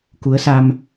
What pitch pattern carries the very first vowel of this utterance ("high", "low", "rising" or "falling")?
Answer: rising